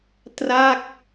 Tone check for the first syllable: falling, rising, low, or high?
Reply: falling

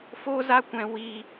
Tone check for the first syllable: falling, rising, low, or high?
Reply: high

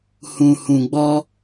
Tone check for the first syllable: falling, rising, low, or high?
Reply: low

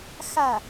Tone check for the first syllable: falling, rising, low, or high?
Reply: falling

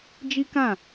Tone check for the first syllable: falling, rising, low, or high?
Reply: high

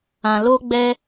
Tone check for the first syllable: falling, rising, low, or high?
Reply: low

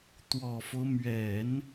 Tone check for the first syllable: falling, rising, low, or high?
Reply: low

